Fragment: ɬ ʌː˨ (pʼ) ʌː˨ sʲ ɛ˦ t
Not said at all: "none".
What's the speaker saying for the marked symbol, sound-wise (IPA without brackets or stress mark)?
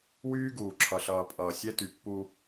pʼ